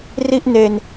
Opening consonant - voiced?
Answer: yes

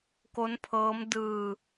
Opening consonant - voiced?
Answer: no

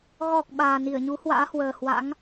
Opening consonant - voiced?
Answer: yes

